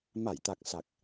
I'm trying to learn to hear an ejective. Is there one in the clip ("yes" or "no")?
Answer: no